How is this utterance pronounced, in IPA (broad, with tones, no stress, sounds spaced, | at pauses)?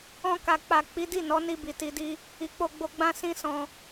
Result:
ɔ̃˧ k a˨ k͡p a˨ k͡p i˨˦ d i˦˨ n ɔ˨˦ n i˧ b i˨ t i˧ d i˦ | i˨ k͡p o˧ ɡ͡b o˧ ɡ͡b ã˦ s ĩ˦ s ɔ̃˧